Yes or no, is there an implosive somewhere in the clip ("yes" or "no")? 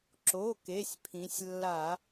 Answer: no